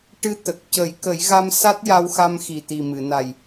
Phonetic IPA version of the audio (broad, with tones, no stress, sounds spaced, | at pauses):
ʈ ɨ˧˥ t̪ ə˨˩ k̚ c ə˨˩˦ j k ə˨˩˦ j ɣ a˧ m s a˦˥ t̚ j a˧ w x a˧ m x i˨˩ t̪ i˨˩ m ɨ˨˩˨ n a˨˩ j